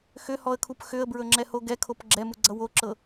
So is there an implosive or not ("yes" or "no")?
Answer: no